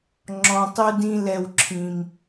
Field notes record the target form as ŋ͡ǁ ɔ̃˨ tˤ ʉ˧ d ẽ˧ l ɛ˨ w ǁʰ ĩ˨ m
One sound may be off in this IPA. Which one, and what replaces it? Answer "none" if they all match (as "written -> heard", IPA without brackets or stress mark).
ẽ˧ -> ĩ˧